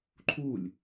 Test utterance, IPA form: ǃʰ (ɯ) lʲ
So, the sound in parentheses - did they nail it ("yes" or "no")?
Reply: no